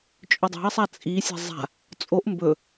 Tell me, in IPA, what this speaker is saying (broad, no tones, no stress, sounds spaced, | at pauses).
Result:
t͡ʃʼ ɵ dˤ a̤ ɐ̯ sˤ a t͡sʼ i sʲ a̤ zˤ a̤ | t͡sʼ o ʔ m b ɵ